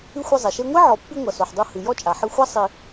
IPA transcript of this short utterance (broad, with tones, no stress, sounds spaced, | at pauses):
ɨ˥ xʷ ɨ˦ zˤ ɛ˩ ʃ e˥ ŋʷ i˥ ʕ ɔ˨ pː i˦ ŋʷ ɐ˨ s o˨ ħ dˤ u˦ h ɨ˨ j ɔ˦ t͡ʃʼ a˩ ħ ɨ˦ xʷ a˥ sˤ i˨